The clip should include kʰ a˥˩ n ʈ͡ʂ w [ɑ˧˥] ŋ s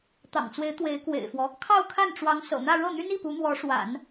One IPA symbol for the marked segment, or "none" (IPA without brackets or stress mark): ɑ˧˥